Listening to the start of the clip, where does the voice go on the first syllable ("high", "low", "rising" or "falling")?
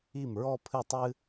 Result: falling